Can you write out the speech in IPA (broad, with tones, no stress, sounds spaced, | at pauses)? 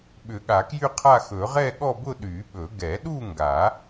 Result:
ɓ ʏ˨˩˦ ɠ a˨˩˦ k j y˥˧ qʰ a˥˧ x ɵ˨˩˦ ʁ ɛ˥˧ ɠ ɔ˥˧ b ʊ˥˧ ɗ y˨˩˦ ɓ ɵ˨˩˦ ɡ ɛ˨˩˦ ɗ u˥˧ ŋ ɡ a˨˩˦